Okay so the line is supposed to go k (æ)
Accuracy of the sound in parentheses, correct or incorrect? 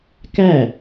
correct